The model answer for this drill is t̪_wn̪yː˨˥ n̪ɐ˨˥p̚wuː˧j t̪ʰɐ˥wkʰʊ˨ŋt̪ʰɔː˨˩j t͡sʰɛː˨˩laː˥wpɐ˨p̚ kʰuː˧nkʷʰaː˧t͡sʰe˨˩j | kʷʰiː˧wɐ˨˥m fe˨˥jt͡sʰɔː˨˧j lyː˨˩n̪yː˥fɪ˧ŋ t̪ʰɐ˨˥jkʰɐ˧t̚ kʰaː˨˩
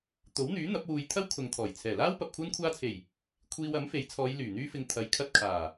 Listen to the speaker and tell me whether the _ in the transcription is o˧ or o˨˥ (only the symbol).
o˨˥